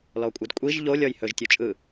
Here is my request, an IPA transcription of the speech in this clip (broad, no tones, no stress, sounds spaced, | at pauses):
l ɔ kʷʼ ɯ d kʷʼ i ʒ ʎ o lʲ ɔ j h ɵ ʒ tʲ o t͡ʃʼ ɯ